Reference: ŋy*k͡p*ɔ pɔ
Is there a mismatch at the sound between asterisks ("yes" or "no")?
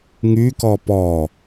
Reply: yes